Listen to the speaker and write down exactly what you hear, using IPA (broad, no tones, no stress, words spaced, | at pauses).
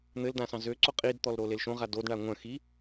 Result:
n̪ɘldã sɑ̃zøǀo qʼidt̪ɔl ɾolelʃõʁa dodɳa ŋʷœ̃ xi